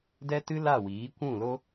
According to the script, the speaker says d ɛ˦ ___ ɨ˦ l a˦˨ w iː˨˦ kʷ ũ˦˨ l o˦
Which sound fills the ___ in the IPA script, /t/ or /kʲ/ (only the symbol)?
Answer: t